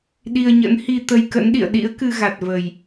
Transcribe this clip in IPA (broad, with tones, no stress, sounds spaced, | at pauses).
ɗ i˧ ə̯ ɲ ə̰˧˥ n h i˧ t̪ ə˧ j k ə̰˧˥ n ɗ ḭ˧˨ ə̯ ɗ ḭ˧˥ ə̯ k ɨ˧ ɣ a˨˩ t̚ v ə˨˩ j